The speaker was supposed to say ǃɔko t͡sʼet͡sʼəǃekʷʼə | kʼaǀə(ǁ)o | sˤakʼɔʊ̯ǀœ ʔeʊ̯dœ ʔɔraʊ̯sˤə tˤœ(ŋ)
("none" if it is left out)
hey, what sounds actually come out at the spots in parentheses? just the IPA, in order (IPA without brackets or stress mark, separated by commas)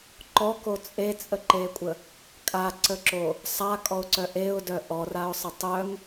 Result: ǁ, ŋ